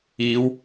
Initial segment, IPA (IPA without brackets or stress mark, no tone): iː